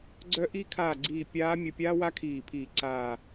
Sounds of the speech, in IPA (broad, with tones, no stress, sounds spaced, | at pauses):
ɡ͡ǀ œ˧˥ ʔ i˧˥ kʰ aː˧˩ ɡ͡ǀ iː˧˩ pʲ aː˧˥ mʲ ə˧˩ pʲ aː˥ w a˥ kʰ iː˧˩ pʰ iː˧˩ ǀ aː˧˩